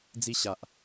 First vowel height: high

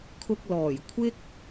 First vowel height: high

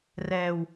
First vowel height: mid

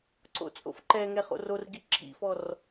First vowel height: mid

